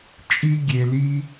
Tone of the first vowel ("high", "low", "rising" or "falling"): high